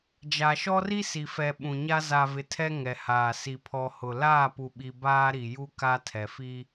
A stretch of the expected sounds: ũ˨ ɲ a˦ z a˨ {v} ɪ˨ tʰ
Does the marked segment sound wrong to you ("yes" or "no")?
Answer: no